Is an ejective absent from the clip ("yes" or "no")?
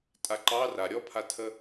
no